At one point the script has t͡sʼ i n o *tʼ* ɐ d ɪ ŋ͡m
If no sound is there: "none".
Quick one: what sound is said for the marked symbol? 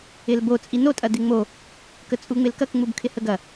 tʼ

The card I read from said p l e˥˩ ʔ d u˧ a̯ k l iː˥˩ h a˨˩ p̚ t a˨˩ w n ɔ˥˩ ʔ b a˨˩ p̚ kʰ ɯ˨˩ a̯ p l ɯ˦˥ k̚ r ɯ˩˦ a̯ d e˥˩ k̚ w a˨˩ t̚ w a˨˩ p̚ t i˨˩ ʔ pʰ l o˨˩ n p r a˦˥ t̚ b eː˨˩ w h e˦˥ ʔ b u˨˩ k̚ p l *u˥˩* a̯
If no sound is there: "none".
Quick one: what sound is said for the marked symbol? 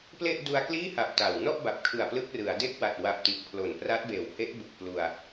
u˧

